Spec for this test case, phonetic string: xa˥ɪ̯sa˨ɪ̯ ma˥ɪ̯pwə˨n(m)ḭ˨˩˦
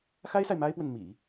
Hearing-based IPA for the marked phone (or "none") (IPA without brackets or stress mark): m